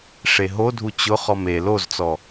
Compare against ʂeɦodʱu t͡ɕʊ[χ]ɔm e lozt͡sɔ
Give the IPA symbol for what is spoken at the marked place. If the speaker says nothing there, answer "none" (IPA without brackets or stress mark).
χ